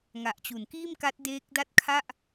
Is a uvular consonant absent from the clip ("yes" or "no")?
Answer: yes